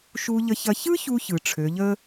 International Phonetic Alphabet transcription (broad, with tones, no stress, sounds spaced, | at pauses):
ʃ u˧ ʎ ə˧ ç ɐ˧ ç ɯ˥ ç u˧ ç ɯ˩ ʈ͡ʂʰ ø˩˧ ʎ ə˥